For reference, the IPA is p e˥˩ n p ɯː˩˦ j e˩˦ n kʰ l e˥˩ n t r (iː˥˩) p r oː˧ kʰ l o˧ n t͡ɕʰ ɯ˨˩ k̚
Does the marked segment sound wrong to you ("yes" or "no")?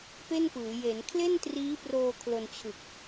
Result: yes